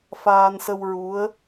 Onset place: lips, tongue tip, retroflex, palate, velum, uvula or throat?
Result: lips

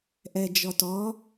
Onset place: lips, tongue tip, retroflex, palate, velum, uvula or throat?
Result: throat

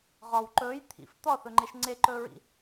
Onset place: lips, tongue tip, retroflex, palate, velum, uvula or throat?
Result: uvula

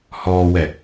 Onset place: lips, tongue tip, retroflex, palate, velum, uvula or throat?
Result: throat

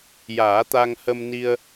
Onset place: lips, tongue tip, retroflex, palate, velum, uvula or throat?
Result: palate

